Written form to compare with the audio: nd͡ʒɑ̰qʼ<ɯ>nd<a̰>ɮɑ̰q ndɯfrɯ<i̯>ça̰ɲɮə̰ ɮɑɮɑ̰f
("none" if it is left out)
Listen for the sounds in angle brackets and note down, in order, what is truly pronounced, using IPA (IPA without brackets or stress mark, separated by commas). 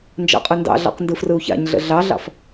ɯ, ɑ̰, u̯